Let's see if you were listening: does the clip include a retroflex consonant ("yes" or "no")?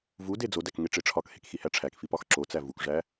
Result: yes